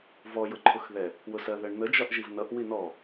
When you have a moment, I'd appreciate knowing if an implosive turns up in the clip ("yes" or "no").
no